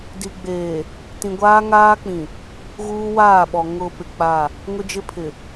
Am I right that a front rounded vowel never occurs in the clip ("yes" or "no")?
yes